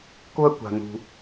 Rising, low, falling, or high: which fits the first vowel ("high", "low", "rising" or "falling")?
high